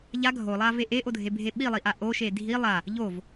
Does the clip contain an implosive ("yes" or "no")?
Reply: yes